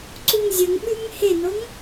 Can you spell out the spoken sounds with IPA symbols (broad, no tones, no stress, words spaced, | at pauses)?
ǀuŋzʲɵŋɓʉŋ henoŋ